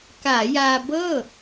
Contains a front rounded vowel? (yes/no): no